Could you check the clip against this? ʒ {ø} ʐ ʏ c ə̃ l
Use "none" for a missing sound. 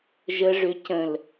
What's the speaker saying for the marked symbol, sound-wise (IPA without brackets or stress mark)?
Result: ə